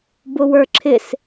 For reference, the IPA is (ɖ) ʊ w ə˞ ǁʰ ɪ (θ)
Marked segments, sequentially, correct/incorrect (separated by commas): incorrect, incorrect